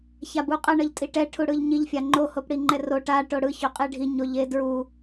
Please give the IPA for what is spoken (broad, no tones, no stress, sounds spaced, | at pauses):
ç a b u qʼ ʌ ɳ ʌ ʎ tʼ i ʈ ɛ ʈʰ u ɽ ɯ ʎ ɲ i ʎ fʲ a ŋ͡ǃ o h o p ɽ i ŋ͡ǃ ɛ r o ʈ a ʈ o ɽ ɯ ç o qʼ e ɖʱ i ɲ o ʎ e d ɹ u